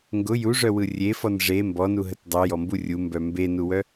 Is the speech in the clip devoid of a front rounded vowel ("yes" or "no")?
no